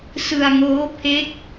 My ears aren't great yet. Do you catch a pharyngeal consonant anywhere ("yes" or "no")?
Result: no